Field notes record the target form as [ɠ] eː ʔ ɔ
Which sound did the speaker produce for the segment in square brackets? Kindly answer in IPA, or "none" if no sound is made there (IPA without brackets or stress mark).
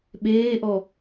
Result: ɓ